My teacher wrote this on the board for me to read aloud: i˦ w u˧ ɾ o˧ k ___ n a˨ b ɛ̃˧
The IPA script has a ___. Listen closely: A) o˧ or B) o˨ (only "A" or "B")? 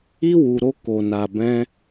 B